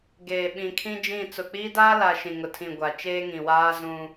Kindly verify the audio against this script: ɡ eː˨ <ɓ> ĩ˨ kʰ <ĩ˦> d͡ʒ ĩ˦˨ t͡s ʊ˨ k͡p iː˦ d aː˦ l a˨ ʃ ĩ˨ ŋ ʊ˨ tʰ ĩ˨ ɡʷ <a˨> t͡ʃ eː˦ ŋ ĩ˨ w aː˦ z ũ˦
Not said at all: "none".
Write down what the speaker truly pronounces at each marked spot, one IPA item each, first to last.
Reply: ɓ, ĩ˦, a˨

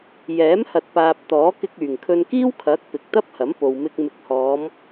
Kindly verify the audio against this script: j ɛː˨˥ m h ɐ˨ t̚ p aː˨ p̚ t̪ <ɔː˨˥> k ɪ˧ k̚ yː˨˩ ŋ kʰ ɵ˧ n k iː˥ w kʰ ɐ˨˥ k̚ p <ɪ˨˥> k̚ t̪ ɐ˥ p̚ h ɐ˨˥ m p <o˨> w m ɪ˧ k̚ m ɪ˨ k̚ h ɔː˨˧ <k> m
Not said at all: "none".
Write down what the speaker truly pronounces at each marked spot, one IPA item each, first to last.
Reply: ɔː˨˥, ɪ˨, o˨, none

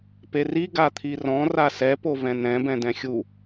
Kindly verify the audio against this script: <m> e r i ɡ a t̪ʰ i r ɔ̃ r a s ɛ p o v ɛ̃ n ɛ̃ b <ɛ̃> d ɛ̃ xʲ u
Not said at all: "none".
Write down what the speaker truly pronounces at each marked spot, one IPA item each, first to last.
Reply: p, ɛ̃

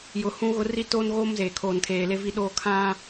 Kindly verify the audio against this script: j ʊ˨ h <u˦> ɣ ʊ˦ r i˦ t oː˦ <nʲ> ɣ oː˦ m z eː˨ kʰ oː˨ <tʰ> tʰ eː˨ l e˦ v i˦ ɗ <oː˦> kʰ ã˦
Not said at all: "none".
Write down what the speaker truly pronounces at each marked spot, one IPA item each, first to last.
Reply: ũ˦, n, n, oː˦

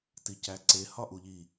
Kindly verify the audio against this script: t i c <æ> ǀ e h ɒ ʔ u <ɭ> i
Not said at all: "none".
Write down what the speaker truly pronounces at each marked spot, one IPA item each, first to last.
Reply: æ, ʎ

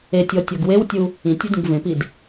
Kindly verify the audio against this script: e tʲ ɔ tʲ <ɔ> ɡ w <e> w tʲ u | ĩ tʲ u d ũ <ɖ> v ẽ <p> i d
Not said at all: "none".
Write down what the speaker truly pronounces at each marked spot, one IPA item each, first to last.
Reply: ɔ, e, ɡ, p

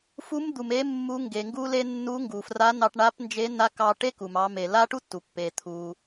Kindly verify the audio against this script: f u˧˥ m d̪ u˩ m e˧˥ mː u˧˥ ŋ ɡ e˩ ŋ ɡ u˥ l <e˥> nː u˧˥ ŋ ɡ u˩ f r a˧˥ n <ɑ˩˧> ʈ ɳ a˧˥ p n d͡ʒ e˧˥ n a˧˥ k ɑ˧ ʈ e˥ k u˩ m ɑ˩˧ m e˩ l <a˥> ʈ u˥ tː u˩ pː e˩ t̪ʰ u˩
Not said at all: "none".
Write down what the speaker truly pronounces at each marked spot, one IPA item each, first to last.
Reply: e˥, ɑ˧, a˥

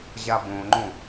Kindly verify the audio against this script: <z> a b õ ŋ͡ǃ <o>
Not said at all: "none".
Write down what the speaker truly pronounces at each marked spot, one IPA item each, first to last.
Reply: ʑ, õ

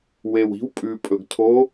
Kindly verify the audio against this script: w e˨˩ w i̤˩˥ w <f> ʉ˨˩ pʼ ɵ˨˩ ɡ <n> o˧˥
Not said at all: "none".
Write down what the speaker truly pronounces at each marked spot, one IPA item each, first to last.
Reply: pʼ, tʰ

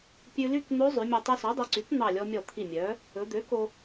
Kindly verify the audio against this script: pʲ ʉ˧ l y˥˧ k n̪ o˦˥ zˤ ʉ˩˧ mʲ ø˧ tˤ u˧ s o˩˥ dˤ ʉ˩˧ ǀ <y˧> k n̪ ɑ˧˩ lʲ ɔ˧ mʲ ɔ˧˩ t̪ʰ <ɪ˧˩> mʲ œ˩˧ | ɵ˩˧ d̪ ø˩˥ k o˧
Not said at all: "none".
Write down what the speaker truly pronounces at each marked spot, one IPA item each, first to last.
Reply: y˩˥, i˧˩

